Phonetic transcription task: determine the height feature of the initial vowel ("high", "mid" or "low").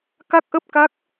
low